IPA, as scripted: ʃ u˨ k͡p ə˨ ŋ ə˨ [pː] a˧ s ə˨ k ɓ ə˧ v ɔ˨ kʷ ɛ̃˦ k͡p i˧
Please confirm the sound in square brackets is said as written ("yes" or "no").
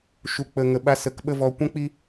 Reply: no